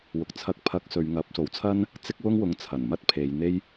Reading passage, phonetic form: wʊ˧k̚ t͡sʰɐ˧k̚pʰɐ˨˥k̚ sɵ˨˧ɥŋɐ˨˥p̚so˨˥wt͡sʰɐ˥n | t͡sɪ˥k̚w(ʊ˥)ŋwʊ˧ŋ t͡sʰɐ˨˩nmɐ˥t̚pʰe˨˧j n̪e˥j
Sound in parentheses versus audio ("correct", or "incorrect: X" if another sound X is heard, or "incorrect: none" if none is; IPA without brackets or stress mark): correct